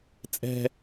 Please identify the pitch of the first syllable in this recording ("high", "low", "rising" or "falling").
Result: high